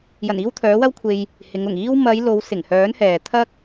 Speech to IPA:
jɐ˨˩niː˧w t̪ʰœː˨˥wɐ˥wkʷʰe˧j | hɪ˨˧ŋ ʊ˨˩ŋiː˧wmɐ˨˧j lo˨˧wsɪ˨˩ŋhœː˨˥n hɛː˨t̪ʰɐ˥k̚

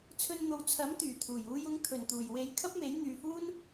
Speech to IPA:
t͡sʰɵ˧nn̪o˨w t͡sʰɐ˨˥mt̪yː˨˩t̪ʰuː˨˩j uː˧jʊ˧ŋt̪ʰɵ˨˩nt̪uː˨˩j we˧j kʰɐ˥p̚me˨˥j n̪yː˨fuː˥n

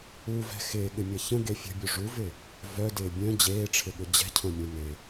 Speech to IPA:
uvɛ̤ xɪːɠɪmʲɐ çə̃ɡe fʲə̤bʲo ʐuvɪ | vœdɪː bʲœ̃ d͡ʑeːʈ͡ʂʰɪɠʊ d͡ʑɛ̤cʰœ̃mʲõ nɪ

